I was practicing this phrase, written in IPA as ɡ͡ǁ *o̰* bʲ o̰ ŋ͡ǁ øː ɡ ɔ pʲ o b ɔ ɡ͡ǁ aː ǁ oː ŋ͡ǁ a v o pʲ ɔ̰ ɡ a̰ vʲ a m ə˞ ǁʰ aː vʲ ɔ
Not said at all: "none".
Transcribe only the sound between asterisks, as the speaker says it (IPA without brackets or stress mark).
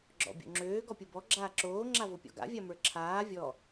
ɔ̰